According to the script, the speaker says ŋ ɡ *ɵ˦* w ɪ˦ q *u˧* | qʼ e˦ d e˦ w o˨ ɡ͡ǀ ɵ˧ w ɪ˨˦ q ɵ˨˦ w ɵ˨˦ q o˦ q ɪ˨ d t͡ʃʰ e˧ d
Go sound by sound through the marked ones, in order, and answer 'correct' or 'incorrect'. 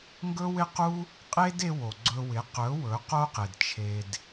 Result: correct, incorrect: u˦

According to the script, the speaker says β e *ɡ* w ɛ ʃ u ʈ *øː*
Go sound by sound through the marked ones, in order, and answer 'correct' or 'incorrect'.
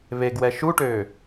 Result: correct, correct

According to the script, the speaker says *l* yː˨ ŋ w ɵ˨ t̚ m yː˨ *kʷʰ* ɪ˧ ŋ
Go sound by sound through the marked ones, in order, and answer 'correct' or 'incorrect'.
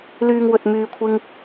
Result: correct, correct

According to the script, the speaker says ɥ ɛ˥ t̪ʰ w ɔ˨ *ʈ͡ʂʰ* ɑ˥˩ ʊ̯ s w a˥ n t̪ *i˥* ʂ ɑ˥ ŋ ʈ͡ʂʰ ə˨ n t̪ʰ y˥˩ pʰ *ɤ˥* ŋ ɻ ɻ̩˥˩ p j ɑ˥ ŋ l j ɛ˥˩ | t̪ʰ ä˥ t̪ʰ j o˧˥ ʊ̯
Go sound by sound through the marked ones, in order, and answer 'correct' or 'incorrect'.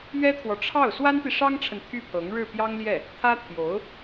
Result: correct, incorrect: i˨, incorrect: ɤ˧˥

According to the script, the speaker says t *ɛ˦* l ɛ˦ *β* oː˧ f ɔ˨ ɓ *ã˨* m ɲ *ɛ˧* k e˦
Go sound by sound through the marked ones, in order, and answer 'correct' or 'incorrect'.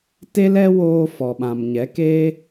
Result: incorrect: e˦, incorrect: w, correct, incorrect: ɛ˨˦

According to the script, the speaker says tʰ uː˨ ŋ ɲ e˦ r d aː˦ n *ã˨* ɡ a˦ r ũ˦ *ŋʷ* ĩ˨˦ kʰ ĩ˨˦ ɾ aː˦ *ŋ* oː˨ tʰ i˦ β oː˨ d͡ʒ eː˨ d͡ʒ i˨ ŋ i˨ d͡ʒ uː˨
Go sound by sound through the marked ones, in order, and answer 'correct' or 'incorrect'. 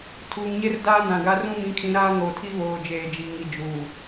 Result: correct, incorrect: m, correct

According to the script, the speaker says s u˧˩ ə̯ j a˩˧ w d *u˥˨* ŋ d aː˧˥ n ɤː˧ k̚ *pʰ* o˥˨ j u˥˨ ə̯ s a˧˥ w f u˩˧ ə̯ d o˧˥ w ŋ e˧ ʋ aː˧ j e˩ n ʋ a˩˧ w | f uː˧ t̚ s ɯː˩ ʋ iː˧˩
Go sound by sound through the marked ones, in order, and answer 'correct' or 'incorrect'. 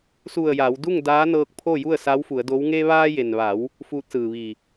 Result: correct, correct

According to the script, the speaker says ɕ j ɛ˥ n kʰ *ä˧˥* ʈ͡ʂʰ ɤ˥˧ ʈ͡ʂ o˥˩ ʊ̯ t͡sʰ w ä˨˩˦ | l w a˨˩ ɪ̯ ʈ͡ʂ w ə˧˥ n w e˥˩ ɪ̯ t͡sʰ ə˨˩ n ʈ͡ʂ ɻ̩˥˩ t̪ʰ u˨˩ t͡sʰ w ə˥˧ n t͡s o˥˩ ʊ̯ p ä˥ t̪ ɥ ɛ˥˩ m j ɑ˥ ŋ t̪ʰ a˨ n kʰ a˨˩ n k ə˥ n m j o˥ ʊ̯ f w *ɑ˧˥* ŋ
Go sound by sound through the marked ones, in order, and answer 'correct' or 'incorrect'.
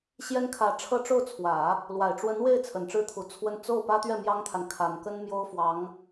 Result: correct, correct

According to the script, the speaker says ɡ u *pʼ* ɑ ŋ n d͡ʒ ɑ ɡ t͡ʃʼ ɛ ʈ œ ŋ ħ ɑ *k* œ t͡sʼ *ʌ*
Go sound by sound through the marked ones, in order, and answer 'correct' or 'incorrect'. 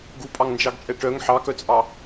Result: correct, correct, incorrect: ɑ

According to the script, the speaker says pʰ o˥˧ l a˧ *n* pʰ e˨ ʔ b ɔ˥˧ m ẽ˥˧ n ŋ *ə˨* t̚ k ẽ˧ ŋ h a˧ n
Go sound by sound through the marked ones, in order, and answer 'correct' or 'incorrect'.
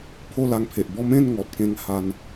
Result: incorrect: ŋ, incorrect: ɔ˨

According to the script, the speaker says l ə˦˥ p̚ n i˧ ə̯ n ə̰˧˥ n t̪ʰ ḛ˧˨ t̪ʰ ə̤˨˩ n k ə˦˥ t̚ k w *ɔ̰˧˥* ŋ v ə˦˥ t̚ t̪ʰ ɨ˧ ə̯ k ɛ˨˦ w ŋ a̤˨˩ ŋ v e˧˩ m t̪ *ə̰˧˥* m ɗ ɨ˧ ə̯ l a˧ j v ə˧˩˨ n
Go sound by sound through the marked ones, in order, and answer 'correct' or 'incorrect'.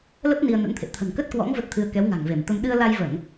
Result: correct, incorrect: ə˧

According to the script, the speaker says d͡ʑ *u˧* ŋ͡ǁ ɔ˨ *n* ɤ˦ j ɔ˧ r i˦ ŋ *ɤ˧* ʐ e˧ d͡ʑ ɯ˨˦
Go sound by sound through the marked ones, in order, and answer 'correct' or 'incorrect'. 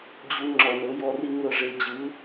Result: correct, correct, correct

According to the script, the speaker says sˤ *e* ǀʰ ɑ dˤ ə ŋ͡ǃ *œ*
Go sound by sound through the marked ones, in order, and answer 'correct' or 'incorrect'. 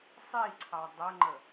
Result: incorrect: i, incorrect: ə

